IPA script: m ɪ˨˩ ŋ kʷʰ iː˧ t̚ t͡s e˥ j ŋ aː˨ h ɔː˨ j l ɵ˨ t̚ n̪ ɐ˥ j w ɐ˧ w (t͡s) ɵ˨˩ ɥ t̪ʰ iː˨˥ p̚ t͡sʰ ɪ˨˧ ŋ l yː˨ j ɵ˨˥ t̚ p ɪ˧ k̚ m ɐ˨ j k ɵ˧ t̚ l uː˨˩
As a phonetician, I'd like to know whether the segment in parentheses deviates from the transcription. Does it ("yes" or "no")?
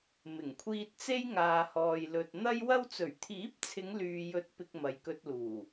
no